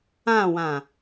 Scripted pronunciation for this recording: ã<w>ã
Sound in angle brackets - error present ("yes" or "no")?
no